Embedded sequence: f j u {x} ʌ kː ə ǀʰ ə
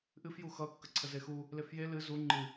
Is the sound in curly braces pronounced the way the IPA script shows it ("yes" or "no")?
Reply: yes